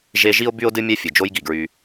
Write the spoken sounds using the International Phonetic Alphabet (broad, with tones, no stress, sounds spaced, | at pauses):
ʒ e˦ ʒ i˥ o̯ b y˥ o̯ d ɨ˥ mʲ ɛ˥ fʲ ɨ˩ d͡ʒ o˦ j ɡ i˩ ɡ ɹ y˨